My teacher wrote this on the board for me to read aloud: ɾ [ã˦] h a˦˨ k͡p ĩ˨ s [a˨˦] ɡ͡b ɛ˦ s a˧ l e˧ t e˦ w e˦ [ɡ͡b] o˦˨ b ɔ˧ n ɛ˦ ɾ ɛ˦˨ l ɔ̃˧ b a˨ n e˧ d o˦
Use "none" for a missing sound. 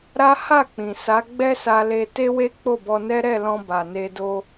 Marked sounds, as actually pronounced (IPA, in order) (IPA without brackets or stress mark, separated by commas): a˦, a˨˦, k͡p